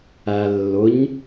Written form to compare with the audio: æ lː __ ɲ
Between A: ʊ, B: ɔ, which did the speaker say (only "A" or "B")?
A